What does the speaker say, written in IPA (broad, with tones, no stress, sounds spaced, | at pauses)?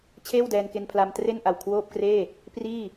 t͡ɕʰ eː˥˩ w d ɛː˧ n k e˧ n pʰ l a˧ m t r e˥˩ n ʔ a˨˩ w kʰ w oː˥˩ p̚ k r eː˥˩ | p r iː˥˩